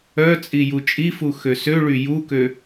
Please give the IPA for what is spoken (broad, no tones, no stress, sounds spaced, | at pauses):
œ t͡sʼ i j u t͡ʃʼ i f u x ø s ø ɭ y j u k ø